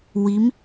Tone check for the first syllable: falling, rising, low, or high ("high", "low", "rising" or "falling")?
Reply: rising